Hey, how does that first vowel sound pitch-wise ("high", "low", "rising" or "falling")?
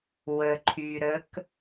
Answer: low